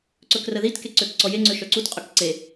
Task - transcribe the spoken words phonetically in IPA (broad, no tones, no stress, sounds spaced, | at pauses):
ǀ ɵ k r ə ð i t k e ǀ ø k ǀ ɔ j e ŋ͡ǀ ø ʃ œ ǀ u t qʼ ɵ k ǀ e